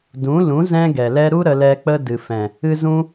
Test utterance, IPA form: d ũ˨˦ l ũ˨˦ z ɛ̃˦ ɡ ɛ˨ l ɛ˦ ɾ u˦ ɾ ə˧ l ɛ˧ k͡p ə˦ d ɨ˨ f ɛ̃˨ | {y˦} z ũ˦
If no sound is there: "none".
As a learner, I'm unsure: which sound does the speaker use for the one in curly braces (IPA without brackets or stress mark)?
ɨ˦